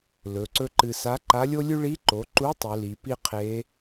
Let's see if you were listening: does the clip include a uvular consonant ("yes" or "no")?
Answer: yes